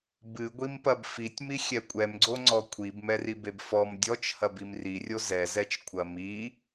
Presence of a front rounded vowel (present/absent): absent